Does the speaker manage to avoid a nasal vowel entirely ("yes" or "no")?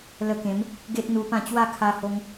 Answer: no